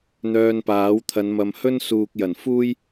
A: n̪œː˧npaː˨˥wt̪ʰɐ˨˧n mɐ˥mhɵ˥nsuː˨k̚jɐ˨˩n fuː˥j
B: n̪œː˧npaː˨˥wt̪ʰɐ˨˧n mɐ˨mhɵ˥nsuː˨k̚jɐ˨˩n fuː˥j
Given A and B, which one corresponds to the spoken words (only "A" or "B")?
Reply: B